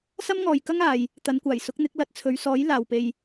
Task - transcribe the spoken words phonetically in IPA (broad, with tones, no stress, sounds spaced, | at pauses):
s ɐ˥ m ŋ ɔː˨ j k ɐ˥ ŋ aː˨ j | t̪ ɐ˨˧ n kʷ aː˨˩ j s ʊ˨˥ k̚ n̪ ɪ˨˥ k̚ l ɐ˧ t̚ t͡sʰ ɵ˨˧ ɥ s ɔː˨˥ j l aː˨ w p e˧ j